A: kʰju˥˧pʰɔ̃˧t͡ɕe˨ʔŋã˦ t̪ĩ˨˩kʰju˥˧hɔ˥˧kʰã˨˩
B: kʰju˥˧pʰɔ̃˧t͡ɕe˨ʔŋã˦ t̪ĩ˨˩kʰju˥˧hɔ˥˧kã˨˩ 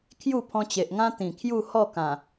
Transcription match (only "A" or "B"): B